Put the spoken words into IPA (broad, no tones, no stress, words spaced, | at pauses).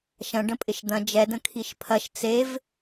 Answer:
ʃɐ̃ ɖə̃pʼɪʃd̪ɐ̃ d͡ʒɛdə̃ kʰiʃpʰɐʃ t͡sev